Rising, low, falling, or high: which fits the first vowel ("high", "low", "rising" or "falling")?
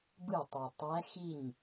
falling